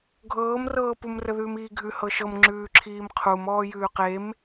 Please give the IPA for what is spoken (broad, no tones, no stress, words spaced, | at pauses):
ɡʱɤːmrɤːpum rəðʉːmiːɡʱʉ hɤʃɤm ŋ͡ǁʉːǁʰiːmqʰum ɔːjʉːqem